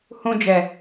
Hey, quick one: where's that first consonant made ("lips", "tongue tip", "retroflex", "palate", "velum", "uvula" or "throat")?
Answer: throat